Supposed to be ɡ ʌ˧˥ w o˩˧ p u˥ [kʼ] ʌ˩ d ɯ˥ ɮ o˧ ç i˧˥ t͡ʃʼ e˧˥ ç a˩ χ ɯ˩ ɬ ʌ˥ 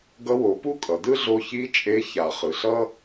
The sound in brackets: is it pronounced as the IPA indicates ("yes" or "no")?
yes